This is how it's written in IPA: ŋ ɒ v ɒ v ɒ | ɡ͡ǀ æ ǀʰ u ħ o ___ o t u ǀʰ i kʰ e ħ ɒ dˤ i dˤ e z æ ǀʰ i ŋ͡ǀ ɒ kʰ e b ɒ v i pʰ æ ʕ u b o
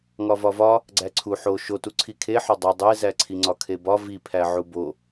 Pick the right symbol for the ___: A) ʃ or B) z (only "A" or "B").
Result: A